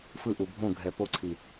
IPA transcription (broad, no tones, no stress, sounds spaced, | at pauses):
f ɯ ʔ u bʱ õ ɡʱ ɛ p o ǀʰ i